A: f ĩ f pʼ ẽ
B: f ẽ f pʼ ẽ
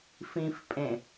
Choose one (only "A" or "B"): A